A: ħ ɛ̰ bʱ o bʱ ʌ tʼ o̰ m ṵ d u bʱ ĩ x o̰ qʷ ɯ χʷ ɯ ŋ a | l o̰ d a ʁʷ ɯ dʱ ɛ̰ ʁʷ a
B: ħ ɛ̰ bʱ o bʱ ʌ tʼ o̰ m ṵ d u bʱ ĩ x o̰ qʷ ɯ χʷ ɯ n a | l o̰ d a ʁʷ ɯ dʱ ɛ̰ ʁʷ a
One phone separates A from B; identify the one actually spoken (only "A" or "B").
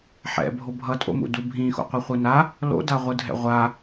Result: B